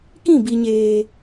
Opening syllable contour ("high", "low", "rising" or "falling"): falling